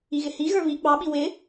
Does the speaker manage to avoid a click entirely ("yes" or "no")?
yes